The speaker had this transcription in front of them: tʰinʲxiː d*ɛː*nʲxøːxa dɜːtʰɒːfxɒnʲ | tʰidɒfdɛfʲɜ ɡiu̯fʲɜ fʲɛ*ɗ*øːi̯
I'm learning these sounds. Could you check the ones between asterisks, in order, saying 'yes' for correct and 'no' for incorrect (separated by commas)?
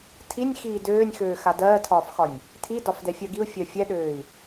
no, yes